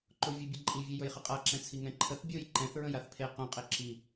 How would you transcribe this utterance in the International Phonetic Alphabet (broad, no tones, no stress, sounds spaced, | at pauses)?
ǃ o vʲ ɘ bʲ ɘ ǃʼ i vʲ e j ɵ j χ ɘ qʼ a ǁ ɛ̃ t͡sʰ i ŋ ɛ̃ ǃʰ ə θ bʲ o j ǃ ɛ̃ θ ɹ ə̃ j a θ pʰ e q œ̃ qʼ e ǁ i